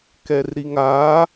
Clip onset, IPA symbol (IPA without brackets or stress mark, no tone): k